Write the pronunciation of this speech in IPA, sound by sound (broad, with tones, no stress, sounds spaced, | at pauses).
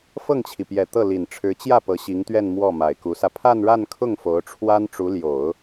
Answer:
f ɤ˥˩ ŋ t͡ɕʰ i˩ p j ɛ˨˩ t̪ ɤ˥˩ l i˨˩ n ʈ͡ʂʰ ɻ̩˧˥ t͡ɕ j ä˥˩ p ɤ˧˥ ɕ i˧˥ ŋ t̪ ɥ ɛ˥˧ n m w ɔ˥˩ m a˨˩ ɪ̯ k u˧˥ s ä˧ pʰ a˥˧ n ɻ a˥˧ n kʰ ʊ˥˩ ŋ f o˧˥ ʊ̯ ʈ͡ʂʰ w a˥ n ʈ͡ʂ u˧˥ l j o˨˩˦ ʊ̯